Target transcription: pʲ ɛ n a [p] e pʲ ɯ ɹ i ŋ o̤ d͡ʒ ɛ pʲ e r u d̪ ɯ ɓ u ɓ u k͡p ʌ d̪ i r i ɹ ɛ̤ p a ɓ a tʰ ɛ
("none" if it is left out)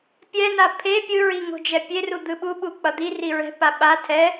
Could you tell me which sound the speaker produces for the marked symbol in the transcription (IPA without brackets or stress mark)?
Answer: pʰ